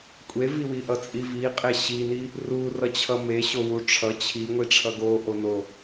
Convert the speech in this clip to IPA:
kʷʼ e v i w i ʔ ʌ t͡sʼ i v i qʼ e ɕ i n i | r u r ʌ t͡ɕʰ ʌ m e ɕ o w u ʈ͡ʂʰ ʌ t͡ɕʰ i ŋʷ i ʈ͡ʂʰ ʌ ɡ o ʔ o n o

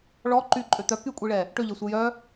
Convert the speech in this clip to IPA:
ɭ ɔ ǃ y ǃʼ ø t̪ œ k y kʷʼ i ɭ ɛ | ʈ ø ʎ e sʷ e j œ

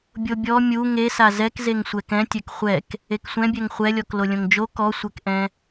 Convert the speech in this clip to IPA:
bʲ o bʲ ɔ mʲ u ŋ e s a z ɛ k z e ŋ sʷ ɛ k ɛ̃ tʲ ɛ k χʷ ɛ k | e k sʷ ɛ̃ bʲ ɛ ŋ χʷ ɛ lʲ ɔ k l o lʲ õ ŋ d͡ʒ o k ɔ sʷ ɛ k ʔ ɛ̃

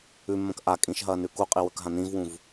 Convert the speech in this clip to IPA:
ʉ mː ɐ̃ k ʔ a kʼ ĩ ʃ ɦ ɐː n ʉ k u qʼ i w ɵ k ɦ ã n ĩ v w ũ v

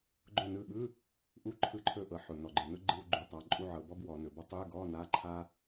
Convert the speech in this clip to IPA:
ɡ͡ǃ ʊ˧˩ n ɯ˧˩ ɠ ɯ˧˥˧ | ʔ u˧˥˧ ǃʰ ɯ˧˩ ǃʰ ɵ˧˩ ʔ ɤ˩˧ ħ ʊ˩ n ɔ˩ ɡ͡ǃ ɯ˩ n ʊ˥ ɡ͡ǃ ɯ˧˥˧ w ɡ͡ǃ u˩ tˤ a˩˧ ǃʼ u˧˥˧ ʕ ɤ˩˧ b ɔ˥ b w ɔ˩˧ n ɵ˩˧ b ɔ˥ tˤ ɯ˧˥˧ ɡ ɔ˧˥˧ n a˧˥˧ ǃʰ a˥

